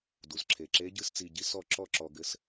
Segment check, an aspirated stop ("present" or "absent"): present